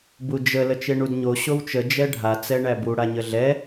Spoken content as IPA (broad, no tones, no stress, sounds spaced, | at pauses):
b u d͡ʒ ə l ə t͡ʃ e ɳ u d ɲ o ɕ o w t͡ʃ ə d͡ʒ ɛ ɖʱ a t͡s ɛ ɳ æ b u ɽ a ɲ ə ɮ ɛ